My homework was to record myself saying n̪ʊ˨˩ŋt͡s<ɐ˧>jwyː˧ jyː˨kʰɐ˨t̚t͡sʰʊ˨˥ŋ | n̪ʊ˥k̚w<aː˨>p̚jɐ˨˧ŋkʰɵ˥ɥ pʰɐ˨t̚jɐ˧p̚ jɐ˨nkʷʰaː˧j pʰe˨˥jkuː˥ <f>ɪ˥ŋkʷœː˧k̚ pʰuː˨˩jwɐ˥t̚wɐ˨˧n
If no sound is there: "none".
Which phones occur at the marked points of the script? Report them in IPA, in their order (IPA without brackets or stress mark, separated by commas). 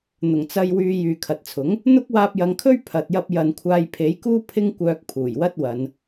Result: ɐ˧, aː˧, pʰ